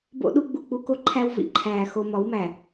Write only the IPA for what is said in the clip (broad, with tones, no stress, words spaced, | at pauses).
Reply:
bo̰˦ɗu˦ ɡ͡bu˨ k͡pu˦ko˦ǃʰæ˦w vḭ˨ǃʰæː˨ xo˦ mɒ˨˦wmæ˨